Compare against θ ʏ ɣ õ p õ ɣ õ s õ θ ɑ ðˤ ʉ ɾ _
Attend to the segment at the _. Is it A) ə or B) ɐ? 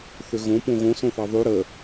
A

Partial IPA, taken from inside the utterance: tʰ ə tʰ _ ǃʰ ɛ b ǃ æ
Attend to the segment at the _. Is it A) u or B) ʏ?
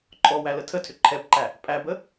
B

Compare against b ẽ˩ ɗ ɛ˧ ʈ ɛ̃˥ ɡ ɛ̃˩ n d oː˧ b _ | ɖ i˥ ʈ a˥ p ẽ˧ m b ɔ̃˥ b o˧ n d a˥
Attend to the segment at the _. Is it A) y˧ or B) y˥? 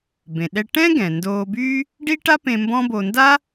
B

